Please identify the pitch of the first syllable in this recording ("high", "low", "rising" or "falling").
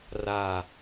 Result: low